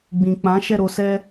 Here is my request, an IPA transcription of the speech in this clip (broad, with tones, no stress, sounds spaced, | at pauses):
ɡ͡b ĩ˨ k͡p ã˨˦ ʃ ɛ˦˨ ɾ o˧ s ɛ˧